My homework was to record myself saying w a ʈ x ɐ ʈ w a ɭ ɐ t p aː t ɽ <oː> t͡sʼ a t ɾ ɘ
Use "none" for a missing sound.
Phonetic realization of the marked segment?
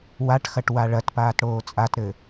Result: oː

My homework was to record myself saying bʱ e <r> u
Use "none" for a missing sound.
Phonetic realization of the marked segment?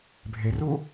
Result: r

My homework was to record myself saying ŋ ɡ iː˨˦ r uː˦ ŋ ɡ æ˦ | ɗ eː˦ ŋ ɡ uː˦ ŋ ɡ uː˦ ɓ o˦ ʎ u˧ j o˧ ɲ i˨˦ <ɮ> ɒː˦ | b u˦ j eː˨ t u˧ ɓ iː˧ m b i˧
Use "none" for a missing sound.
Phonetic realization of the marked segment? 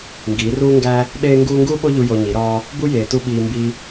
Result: ɾ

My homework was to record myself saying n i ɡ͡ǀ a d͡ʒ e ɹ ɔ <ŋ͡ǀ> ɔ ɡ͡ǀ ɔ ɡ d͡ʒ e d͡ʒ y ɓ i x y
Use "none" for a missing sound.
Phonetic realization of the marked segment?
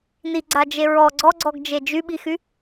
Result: ɡ͡ǀ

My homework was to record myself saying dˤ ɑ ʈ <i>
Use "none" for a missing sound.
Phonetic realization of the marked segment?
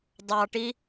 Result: i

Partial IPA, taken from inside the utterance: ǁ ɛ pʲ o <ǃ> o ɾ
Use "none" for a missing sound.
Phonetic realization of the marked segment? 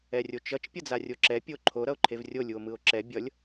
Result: ǃʰ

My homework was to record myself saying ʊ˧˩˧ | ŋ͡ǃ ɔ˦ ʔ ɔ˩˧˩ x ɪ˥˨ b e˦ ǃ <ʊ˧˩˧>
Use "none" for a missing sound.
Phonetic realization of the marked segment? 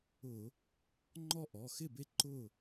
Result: ʊ˥˨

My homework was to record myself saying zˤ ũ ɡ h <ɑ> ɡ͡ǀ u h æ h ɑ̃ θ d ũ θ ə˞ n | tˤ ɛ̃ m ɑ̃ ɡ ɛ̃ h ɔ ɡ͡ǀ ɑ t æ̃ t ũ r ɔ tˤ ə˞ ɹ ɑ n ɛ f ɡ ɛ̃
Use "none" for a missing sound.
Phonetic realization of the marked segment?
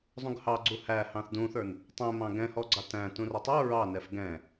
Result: ɑ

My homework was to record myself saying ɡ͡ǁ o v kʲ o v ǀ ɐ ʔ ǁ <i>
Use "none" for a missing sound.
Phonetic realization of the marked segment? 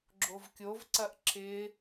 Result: ɪ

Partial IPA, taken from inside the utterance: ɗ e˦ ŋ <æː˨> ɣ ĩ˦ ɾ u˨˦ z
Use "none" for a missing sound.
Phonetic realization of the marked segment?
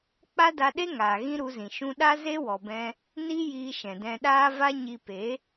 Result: aː˨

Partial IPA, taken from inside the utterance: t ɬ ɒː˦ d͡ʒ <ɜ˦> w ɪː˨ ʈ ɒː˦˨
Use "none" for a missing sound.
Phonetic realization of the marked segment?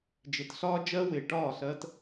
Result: ɜ˦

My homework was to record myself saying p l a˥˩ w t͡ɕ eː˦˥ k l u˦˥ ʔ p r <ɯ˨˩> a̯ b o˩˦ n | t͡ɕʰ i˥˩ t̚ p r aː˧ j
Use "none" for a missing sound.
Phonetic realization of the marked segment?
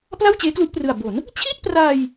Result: ɯ˨˩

